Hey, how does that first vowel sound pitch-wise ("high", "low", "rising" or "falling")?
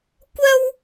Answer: high